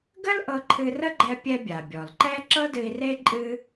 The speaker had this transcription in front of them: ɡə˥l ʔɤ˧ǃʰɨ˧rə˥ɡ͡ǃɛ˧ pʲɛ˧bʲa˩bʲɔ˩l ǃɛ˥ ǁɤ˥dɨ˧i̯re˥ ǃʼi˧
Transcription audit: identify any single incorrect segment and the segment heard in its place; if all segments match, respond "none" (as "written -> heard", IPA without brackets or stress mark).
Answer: i˧ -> ɨ˧